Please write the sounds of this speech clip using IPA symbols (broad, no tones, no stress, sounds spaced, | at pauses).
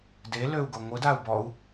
d e l ø u̯ ɡ o ŋʷ ɯ d a u̯ b ɔ u̯